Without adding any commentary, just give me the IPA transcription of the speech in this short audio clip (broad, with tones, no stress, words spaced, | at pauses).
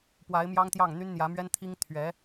pwa˧˥ɪ̯mjɑ˥ŋt̪jɑ˥˩ŋ n̪y˥nn̪jä˧˥mɥɛ˥n t̪ʰi˥ŋt̪ʰɥɛ˧˥